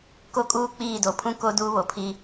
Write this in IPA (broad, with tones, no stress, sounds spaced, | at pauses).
k o˦ kʼ uː˦ k͡p iː˦˨ d o˨ pʰ ũ˦ k o˦ d uː˦ β o˨ pʰ i˦